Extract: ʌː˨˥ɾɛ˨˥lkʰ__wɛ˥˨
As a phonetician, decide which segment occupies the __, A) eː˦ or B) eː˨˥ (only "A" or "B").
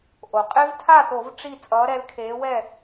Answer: B